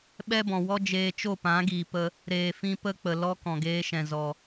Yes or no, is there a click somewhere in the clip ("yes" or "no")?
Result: no